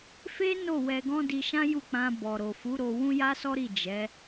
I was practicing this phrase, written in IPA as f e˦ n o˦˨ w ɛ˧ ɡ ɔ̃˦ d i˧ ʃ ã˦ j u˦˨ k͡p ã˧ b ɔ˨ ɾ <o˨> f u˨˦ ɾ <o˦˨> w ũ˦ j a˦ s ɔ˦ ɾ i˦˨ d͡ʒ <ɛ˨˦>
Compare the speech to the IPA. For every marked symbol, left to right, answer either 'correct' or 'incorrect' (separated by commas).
correct, incorrect, correct